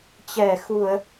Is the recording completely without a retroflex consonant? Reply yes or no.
yes